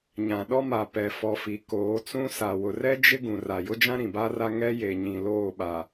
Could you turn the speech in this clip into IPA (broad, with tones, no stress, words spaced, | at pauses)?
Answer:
ɲã˨ɗɔ˦ma˨ pɛ˨fɔ˨fi˨ koː˨˦t͡sũ˦sa˨ wʊ˨rɛ˦ d͡ʒɪ˦ ɡũ˨ra˨ jʊ˦d͡ʒã˦ ɾĩ˨ba˦ra˦ ŋɛ˦je˨ ɲĩ˨ loː˦˨ɓa˨